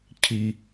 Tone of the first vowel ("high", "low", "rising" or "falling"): low